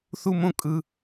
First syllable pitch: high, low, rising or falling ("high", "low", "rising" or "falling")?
high